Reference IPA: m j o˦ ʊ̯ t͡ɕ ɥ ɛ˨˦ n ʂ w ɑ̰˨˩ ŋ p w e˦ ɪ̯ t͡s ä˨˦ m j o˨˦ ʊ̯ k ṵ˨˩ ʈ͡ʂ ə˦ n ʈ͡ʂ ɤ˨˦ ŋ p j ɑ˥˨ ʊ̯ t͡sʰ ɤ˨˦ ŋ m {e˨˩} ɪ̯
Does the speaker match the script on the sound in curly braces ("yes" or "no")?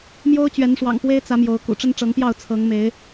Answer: no